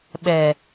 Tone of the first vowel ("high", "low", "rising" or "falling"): low